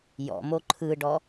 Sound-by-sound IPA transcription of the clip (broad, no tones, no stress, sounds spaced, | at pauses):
j ɔ̰ m o ǃʰ ɯ ɖ ɔ